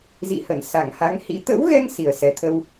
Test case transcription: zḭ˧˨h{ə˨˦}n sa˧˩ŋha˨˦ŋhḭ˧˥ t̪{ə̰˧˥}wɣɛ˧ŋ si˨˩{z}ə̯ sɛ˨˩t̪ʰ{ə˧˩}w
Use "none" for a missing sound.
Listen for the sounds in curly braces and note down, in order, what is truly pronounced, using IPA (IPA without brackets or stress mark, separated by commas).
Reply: ə˧˩, ə̰˧˥, none, ə˧